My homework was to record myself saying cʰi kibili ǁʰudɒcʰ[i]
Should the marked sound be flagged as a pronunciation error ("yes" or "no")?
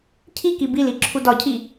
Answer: no